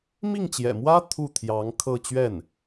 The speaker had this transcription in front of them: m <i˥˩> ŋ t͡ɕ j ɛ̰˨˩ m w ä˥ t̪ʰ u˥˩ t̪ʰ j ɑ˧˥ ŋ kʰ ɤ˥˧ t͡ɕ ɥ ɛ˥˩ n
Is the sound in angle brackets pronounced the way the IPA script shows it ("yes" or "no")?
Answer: yes